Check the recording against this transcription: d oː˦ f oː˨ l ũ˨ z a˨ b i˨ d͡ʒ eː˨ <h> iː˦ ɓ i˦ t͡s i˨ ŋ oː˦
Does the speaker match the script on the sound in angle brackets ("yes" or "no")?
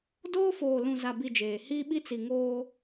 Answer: yes